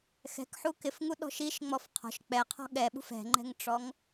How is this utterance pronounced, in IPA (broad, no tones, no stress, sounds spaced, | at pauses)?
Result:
x ɛ̤ k ħ u k ɪ f ŋ u ɗ ɔ̤ ʃ i ʃ ŋ͡m ɔ f qʰ ɔ̤ ʃ k͡p ɛ qʰ ɔ̤ ɠ ɛ ɓ ṳ f ɛ̤ ŋ͡ǃ ɛ̤ ŋ ʈ͡ʂ ɔ ŋ